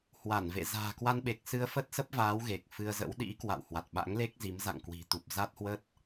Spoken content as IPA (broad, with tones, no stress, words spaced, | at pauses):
hwa˧˩nvḛ˧˨ za̤ː˨˩kwa˧nɓe˨˩k̚sɨ˧ə̯ fə˦˥t̚sə˦˥p̚vaː˨˦w ɣe˨˩k̚fɨ˧ə̯zə̰˧˥w ɗḭ˧˥ kwa̰˧˨whwa˨˩t̚ ɓa̰˧˥ŋle˦˥k̚zi˨˦m za̰˧˨ŋkwi̤˨˩t̪u˨˩p̚ za˦˥t̚hwə˦˥t̚